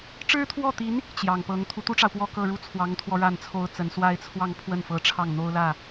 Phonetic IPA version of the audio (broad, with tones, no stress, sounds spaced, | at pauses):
ʈ͡ʂ ɻ̩˥ t̪ʰ w ɔ˥˩ t̪ i˧˥ n | t͡ɕ j ɑ˨˩ ŋ p ɤ˧˥ ŋ t̪ʰ u˧˥ t̪ u˥ ʈ͡ʂ ɑ˨ ʊ̯ p w ɔ˥˧ k ɤ˥˧ ɻ u˥˩ t͡sʰ w ɑ˧˥ ŋ t̪ʰ w ɔ˧ ɻ a˥˩ n t͡sʰ o˥ ʊ̯ t͡s ə˧˥ n s w a˥ ɪ̯ t͡sʰ w ɑ˥˧ ŋ pʰ w ə˥˩ n f ɤ˧˥ ʈ͡ʂʰ ɑ˥˩ ŋ n̪ o˥ ʊ̯ l ä˥˩